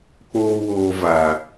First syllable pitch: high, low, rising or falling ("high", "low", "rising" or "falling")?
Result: high